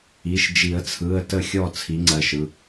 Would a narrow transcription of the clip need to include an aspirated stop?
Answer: yes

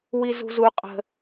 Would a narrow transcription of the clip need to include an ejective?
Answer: yes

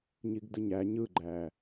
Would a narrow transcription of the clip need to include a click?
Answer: yes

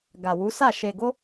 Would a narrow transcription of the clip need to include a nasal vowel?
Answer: no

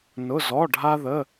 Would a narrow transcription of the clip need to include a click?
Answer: no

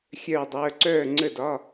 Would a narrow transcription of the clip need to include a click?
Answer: yes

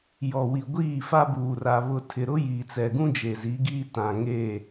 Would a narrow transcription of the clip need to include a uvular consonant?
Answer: no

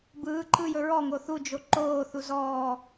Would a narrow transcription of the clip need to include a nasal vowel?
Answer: no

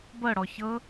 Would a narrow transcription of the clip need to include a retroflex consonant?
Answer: yes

